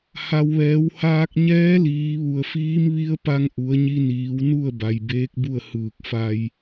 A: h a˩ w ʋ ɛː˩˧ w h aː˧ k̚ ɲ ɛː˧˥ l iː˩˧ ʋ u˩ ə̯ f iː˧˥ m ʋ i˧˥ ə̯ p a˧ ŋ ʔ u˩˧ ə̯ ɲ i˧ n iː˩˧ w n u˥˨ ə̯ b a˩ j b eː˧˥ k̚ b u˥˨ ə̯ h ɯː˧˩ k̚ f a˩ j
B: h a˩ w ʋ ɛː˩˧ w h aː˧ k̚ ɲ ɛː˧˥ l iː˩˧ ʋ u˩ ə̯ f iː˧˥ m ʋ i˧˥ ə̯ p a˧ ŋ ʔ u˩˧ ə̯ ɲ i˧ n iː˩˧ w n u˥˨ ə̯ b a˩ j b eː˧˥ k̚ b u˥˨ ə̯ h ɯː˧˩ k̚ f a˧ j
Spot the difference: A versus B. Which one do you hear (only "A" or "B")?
B